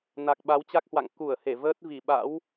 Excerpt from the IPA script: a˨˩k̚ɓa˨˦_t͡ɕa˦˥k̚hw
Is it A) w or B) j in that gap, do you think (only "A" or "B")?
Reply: A